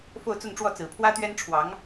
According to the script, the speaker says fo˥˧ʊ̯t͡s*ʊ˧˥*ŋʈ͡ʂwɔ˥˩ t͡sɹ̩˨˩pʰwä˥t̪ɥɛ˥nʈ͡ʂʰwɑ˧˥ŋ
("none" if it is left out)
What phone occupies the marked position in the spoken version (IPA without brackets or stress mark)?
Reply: ʊ˥˧